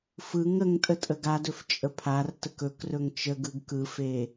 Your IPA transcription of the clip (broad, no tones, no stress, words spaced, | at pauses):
fɯŋ əŋ tʼətʼəɡadɵf t͡ʃʼəpʰartək ɵkrɵŋ t͡ʃəɡɯɡ kɯfe